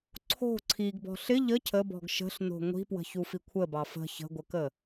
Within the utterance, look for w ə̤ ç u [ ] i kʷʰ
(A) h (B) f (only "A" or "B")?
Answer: B